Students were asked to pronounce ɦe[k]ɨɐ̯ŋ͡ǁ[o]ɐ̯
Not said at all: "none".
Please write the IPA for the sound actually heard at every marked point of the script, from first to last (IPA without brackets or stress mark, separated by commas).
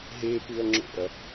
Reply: p, o̰